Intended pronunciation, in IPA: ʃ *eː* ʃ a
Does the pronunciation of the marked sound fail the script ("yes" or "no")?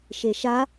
yes